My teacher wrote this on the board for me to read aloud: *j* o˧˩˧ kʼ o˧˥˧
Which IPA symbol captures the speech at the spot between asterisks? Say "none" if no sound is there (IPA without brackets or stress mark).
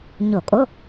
ɲ